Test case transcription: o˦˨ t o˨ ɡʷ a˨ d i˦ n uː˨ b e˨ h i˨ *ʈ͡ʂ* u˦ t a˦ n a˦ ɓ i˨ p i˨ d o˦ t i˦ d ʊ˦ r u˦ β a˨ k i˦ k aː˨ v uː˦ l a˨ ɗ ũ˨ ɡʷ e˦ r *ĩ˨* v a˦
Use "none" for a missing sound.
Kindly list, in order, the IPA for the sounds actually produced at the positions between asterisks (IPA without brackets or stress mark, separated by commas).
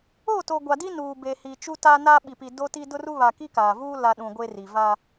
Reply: t͡ʃ, i˨